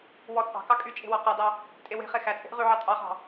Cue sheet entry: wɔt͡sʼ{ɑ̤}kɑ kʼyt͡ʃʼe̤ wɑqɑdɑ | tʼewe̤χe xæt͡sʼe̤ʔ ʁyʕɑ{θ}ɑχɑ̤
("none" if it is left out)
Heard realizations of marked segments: ɑ̤, tʼ

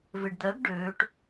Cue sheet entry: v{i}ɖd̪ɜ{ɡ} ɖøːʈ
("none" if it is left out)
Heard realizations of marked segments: e, ɡ

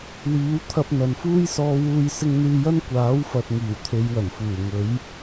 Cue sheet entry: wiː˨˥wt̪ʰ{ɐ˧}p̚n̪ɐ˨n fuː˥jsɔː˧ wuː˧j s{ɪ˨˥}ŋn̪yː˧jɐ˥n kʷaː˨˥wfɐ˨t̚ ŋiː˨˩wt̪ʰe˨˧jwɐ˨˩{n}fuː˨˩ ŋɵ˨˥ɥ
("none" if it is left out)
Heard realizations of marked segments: ɐ˧, ɪ˧, n

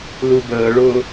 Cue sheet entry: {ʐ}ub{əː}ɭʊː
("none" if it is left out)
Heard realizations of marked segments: l, əː

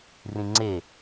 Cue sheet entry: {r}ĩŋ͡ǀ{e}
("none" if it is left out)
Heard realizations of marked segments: r, e

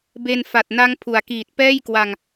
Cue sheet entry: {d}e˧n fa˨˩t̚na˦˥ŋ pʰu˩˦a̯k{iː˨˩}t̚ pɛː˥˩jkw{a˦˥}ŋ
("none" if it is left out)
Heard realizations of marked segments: b, iː˨˩, a˧

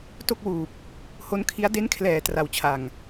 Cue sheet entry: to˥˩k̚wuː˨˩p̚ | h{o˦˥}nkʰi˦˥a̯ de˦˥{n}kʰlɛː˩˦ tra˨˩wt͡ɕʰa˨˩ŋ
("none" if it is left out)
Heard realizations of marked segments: o˦˥, n

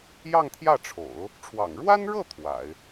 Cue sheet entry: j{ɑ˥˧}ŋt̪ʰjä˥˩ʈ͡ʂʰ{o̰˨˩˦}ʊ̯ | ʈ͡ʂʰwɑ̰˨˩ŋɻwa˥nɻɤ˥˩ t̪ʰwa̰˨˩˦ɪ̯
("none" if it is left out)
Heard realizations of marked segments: ɑ˥˧, o̰˨˩˦

